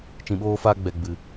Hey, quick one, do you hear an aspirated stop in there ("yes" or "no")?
no